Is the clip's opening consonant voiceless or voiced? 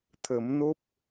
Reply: voiceless